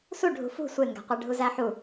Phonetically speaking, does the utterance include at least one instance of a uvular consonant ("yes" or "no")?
yes